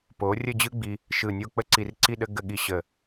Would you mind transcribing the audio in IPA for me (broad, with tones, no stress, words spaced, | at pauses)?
po˩˧ rʲə˥˧d͡ʑɯ˥ɡ͡bi˧ | ʃɯ˧˩nʲo˥˧ k͡pə˥˧ǀi˧˩rǀi˥˧ ɗə˥ ɡə˥˧ɠi˥ ɕə˧˩